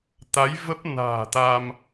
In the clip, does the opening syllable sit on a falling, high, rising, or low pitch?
rising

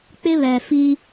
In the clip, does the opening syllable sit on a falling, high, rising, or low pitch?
high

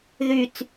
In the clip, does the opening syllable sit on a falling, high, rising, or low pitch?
low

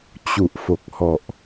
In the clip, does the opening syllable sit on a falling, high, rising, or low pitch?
low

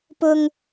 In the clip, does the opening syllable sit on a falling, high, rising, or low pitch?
high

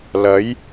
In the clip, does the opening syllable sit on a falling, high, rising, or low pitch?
rising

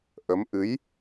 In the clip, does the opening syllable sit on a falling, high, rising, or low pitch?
rising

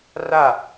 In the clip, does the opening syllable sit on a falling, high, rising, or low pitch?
falling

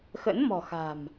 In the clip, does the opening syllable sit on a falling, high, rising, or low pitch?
rising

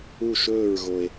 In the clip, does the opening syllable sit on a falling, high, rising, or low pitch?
falling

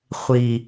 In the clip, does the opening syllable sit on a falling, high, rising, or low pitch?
low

